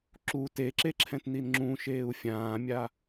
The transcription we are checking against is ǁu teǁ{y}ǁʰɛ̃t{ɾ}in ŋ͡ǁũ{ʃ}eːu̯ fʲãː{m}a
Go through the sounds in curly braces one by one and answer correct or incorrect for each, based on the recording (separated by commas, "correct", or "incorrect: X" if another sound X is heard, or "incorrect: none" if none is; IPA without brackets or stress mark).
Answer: incorrect: e, incorrect: n, correct, incorrect: mʲ